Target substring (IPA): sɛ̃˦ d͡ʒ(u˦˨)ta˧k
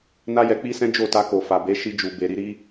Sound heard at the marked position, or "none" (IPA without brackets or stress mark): o˦˨